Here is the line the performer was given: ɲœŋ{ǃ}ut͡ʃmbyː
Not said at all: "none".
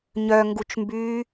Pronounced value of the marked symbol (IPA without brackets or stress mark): ɡ